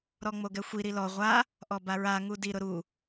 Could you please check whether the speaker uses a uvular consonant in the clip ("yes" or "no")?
yes